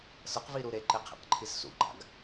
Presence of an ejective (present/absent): absent